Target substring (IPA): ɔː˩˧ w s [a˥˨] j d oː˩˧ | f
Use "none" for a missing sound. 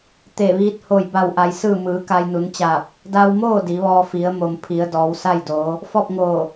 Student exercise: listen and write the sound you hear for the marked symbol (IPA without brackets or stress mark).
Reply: a˥˨